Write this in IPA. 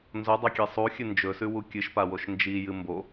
n z o dˤ ɐ kʲ e sˤ u xʲ ɨ n d͡ʒ ɵ s ʉ w u kʲ ɨ ʃ p a w o ʃ n d͡ʒ i j ɨ m b o

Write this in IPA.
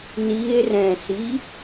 n i e̯ r ɛ̃ s i

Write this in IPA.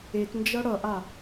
e t n d͡ʒ ʌ ɽ ʌ ʔ a

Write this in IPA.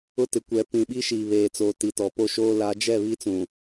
ʊ˦ t ɪ˨ kʷ ɛ˨ p ĩ˨ ɓ i˦ ʃ iː˨ β eː˨ t͡s oː˨ t i˨ t ɔ˨ p o˦ ʃ oː˦ l a˨˦ d͡ʒ ɛ˦˨ β i˦ t͡s ũ˨

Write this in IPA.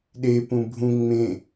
ɗ e p ũ bʱ ũ ŋ͡m ẽ

